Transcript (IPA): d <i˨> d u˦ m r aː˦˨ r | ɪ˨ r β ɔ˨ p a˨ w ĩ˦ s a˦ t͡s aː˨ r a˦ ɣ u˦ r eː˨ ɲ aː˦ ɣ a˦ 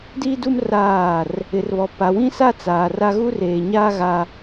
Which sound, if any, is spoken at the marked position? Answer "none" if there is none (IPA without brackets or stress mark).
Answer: i˦